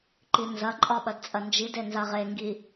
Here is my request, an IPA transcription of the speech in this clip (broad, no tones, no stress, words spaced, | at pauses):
ǃinzɐǃʼɒ ɓɐdt͡sʼɐnd͡ʒide nzaʁeŋɡi